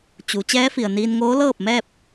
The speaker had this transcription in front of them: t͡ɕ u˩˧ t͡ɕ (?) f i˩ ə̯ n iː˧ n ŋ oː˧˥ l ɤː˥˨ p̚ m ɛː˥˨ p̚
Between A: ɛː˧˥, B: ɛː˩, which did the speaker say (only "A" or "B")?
A